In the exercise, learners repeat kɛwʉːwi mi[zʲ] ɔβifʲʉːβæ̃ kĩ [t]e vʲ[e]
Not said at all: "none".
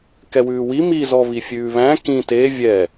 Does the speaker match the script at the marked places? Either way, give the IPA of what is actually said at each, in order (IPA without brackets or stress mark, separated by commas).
z, t, ɛ